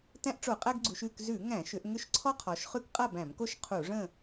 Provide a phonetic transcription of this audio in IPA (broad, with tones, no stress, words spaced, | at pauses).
tæ̃˦ʔʈ͡ʂo˧˩˧qʼæ˦ɡɡ͡ǀu˩˧ʃ ʉ˥˨kzʉ˧˩˧ ŋæ̃˧˩˧ʃʏ˩˧ʔ ŋʏ˦ʃǀʰɔ˦qʰɔ˩˧ʃ χʉ˦kqʼa˥˨bæ̃˧˩˧mko˥˨ʃ qʰu˧˩˧ʐə̃˥˨